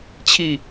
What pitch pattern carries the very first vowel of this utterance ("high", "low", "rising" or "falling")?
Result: falling